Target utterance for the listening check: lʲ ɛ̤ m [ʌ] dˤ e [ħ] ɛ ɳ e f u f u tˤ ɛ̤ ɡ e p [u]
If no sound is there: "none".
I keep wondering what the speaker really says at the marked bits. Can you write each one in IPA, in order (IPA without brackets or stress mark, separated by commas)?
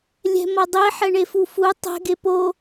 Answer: ʌ, ħ, o